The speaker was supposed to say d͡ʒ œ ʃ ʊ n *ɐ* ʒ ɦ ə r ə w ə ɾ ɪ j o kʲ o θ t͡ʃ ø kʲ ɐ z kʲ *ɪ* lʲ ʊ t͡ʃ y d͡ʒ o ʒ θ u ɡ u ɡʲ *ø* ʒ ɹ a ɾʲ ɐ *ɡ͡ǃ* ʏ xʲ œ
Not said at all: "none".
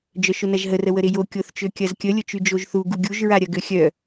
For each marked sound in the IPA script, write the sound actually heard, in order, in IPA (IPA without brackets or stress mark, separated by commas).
ɐ, ə, u, ɡ